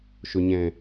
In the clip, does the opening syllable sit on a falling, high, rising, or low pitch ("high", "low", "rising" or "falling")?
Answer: low